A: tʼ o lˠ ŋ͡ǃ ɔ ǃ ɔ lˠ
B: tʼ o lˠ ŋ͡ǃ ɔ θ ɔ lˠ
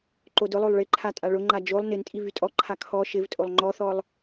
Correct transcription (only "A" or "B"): B